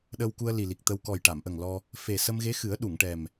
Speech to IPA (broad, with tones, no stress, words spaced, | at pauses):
ɗə˧wku˧ə̯ li˨˩li˨˩k̚t̪ə˧w kɔ˨˩jʈa˨˩˨mʔə˨˩ŋ lɔ˧ | fe˨˩sə˧mɣe˧˥xɨ˨˩˦ə̯ ɗu˨˩˨ŋʈɛ˨˩m